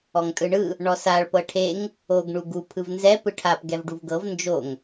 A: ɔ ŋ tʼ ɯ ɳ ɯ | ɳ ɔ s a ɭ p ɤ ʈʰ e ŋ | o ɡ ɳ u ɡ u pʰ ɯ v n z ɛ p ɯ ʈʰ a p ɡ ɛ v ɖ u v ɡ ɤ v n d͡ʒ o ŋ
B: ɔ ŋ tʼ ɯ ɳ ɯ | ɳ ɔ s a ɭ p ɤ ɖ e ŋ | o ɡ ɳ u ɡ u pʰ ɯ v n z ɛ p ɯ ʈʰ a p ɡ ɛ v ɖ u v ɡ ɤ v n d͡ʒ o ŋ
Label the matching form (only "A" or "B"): A